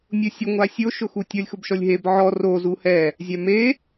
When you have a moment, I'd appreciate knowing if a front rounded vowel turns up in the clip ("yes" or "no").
no